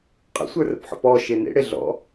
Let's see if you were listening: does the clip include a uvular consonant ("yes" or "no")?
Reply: yes